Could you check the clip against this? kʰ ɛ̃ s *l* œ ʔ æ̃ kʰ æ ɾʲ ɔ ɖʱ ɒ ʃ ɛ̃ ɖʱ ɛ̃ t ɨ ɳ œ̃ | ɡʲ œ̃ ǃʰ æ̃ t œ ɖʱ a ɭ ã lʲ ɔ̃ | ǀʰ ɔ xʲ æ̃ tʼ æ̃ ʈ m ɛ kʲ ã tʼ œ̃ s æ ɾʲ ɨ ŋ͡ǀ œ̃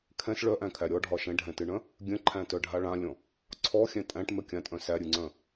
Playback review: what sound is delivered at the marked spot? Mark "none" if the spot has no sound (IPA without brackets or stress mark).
ɭ